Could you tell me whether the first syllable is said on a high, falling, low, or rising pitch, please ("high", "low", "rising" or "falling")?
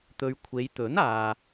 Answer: low